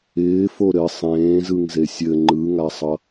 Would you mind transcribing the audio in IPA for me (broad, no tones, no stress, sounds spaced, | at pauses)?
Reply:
ɪː f o ɾ ɘ sˤ ẽː z ɯ ŋ z e sʲ ɘ ŋ͡ǃ ɯ ŋ a sˤ ʌ